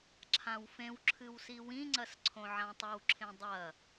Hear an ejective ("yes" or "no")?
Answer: no